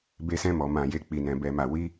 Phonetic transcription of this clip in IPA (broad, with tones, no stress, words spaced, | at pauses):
be˧sɛ̃˧mɔ˨ mã˨je˨ k͡pi˨nɛ̃˨ bɛ˨ma˨ wi˧